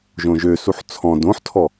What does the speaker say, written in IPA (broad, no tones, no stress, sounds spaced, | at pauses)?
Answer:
ʒ õ ʒ ø s u ħ t͡sʰ ɔ̃ d õ ħ tʰ ɔ